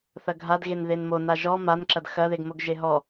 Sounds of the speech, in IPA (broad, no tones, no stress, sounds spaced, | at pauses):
θ ɐ ɡʱ a d ɣ e n ð e n m o n a ʒ ɔ m a n ǁ ɐ d x ɐ ð e ɡ m o ɡ ʒ e ɦ ɔ